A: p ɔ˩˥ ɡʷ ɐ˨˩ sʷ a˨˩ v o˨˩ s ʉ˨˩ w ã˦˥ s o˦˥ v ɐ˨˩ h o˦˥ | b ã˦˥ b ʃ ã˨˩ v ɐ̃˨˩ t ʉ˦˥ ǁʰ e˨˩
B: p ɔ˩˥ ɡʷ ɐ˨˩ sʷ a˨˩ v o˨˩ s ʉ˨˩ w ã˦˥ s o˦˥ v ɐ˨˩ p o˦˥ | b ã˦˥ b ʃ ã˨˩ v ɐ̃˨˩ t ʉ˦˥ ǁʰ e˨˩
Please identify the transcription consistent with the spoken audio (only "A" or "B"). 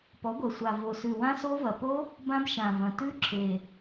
B